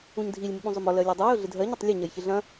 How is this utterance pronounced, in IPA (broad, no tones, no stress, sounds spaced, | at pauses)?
ũ ɲ dʱ i lʲ m ɪ ɓ ũ zˤ ʊ m ɔ l ɜ lʲ ɛ dˤ ɛ j ʊ ɮ ɪ dʱ ɜ ɲ e tˤ lʲ ʊ ɲ ɐ j ç ɪ ɮ ɐ̃